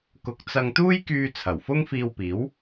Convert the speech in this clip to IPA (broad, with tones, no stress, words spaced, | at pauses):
kʊ˧k̚ t͡sɐ˧ŋt̪uː˥jkyː˧ t͡sʰɐ˨˩wfʊ˥ŋfiː˧wpiː˨˥w